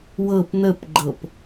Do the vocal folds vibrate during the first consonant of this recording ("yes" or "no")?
yes